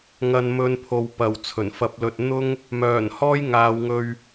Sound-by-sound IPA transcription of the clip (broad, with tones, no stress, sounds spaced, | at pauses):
ŋ ɐ˨ n m ɵ˨˧ n pʰ o˨ w p ɐ˨˩ w t͡sʰ ɵ˨˩ n f ɐ˧ p̚ l ɵ˧ t̚ n̪ ʊ˥ ŋ | m œː˨˩ n h ɔː˥ j ŋ aː˨˧ w ŋ ɵ˧ ɥ